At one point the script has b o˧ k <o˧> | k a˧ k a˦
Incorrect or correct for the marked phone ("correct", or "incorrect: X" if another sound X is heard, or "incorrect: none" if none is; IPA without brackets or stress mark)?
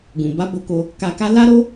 correct